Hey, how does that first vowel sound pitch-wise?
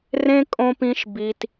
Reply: high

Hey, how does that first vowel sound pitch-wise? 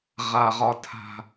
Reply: low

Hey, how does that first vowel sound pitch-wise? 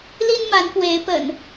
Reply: high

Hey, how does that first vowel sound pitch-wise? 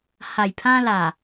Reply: low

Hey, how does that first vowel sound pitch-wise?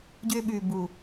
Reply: high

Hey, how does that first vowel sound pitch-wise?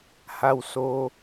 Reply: low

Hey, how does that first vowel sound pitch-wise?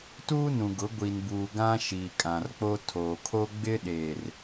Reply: high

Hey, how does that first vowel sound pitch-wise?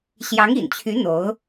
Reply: rising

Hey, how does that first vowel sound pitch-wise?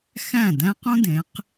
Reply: falling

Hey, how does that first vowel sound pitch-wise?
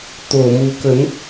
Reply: low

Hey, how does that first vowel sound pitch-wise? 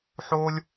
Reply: high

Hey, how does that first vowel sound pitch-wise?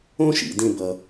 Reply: high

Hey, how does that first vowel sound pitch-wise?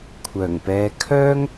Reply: low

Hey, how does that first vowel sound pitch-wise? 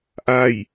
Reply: falling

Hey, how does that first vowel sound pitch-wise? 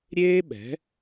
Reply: high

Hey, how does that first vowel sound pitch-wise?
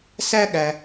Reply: high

